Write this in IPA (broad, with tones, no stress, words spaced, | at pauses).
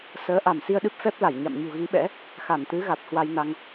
səː˨˦ ʔa˧˩m si˧ə̯ɗɨ˦˥p̚fɛ˦˥p̚la˧˩j ɲa̰˧˨m ɲṳ˨˩ɣi˨˦ɓɛ̰˧˥ | xa˧˩nt̪ɨ˨˦ɣa˨˩t̚ hwa˧jna˧ŋ